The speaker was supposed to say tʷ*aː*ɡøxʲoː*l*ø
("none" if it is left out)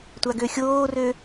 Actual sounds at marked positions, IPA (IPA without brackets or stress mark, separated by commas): a, r